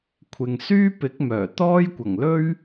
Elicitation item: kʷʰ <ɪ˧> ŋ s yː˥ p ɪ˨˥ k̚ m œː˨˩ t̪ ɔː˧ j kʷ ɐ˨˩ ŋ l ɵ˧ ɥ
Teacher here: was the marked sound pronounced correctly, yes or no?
no